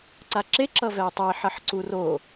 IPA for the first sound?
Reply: ǀ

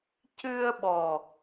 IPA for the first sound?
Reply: c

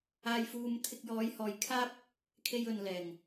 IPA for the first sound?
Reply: aː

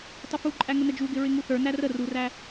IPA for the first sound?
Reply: tˤ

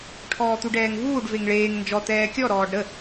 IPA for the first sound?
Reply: ʈʰ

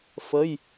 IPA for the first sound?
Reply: f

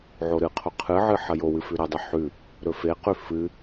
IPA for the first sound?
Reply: ʕ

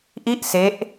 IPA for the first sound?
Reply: ʔ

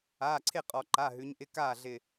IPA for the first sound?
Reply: aː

